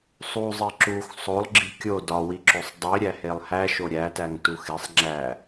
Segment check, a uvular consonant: absent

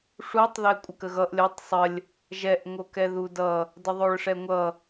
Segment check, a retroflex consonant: present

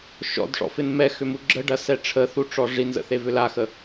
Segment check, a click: present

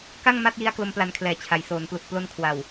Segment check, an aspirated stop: present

